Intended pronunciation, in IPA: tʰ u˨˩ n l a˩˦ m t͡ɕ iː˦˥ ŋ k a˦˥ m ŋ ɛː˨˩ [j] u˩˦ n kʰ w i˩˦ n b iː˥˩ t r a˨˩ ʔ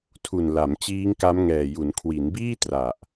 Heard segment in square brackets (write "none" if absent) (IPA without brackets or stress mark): j